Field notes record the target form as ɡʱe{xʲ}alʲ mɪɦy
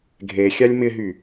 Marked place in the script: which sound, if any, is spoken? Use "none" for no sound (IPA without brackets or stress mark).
xʲ